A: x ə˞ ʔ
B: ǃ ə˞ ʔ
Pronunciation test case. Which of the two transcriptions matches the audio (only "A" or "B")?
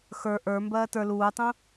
A